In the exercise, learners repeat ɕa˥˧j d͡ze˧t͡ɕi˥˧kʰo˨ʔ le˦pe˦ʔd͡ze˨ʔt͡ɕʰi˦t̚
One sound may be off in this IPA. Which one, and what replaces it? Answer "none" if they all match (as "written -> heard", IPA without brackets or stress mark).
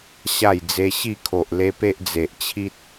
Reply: t͡ɕ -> ɕ